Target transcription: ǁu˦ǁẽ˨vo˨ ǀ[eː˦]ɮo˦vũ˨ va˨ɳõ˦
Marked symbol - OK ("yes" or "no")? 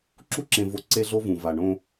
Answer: no